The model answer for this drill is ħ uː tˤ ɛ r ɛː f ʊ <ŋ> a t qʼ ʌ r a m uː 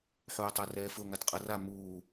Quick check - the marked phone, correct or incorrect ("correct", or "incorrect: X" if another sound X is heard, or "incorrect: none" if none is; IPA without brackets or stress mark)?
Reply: correct